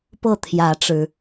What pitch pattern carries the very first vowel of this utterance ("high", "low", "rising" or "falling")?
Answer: falling